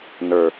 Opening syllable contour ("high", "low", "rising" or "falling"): low